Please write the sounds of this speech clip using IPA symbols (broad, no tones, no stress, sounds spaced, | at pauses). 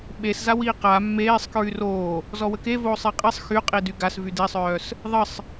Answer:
ɓ e s z a w iː q a mː eː sˤ k ɹ y r oː | z ɔ w ə k e v oː sˤ e qʼ i sˤ x y qʼ i d y ɡ a s v y d i sˤ œː s | ðˤ ə sˤ